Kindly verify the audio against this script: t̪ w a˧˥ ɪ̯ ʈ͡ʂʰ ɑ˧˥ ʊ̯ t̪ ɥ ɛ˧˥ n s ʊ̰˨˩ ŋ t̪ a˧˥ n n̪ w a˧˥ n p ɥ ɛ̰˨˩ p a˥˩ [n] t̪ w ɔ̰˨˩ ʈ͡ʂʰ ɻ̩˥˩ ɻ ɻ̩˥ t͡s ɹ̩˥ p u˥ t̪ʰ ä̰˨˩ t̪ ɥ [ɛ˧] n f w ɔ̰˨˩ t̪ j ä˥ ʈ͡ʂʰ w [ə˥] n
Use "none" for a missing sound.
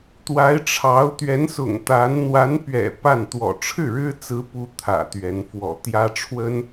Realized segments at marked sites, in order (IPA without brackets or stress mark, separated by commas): n, ɛ˧˥, ə˥